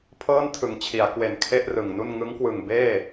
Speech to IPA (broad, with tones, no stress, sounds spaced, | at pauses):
pʰ ɤː˥˩ n tʰ ɯ˩˦ ŋ t͡ɕʰ i˩˦ a̯ k w e˨˩ n kʰ e˥˩ ʔ r ɯ˨˩ ŋ n u˥˩ n ŋ ɯ˦˥ ŋ k w ɯ˨˩ ŋ b eː˥˩